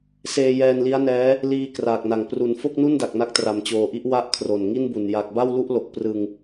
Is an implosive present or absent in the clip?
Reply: absent